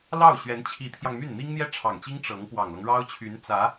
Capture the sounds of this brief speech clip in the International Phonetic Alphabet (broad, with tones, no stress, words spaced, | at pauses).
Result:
lɑ˥˩ʊ̯ ɕɥɛ˧˥nt͡ɕʰi˧˥t̪ʰjɑ˧ŋmy˥˩n n̪i˥ŋn̪jɛ˥˩ ʈ͡ʂʰɑ˨˩ŋt͡ɕi˥ŋ ʈ͡ʂɤ˧˥ŋ pwɑ˨˩ŋlɤ˦ŋɻɑ˥ʊ̯t͡ɕʰy˧˥n t͡sä˧˥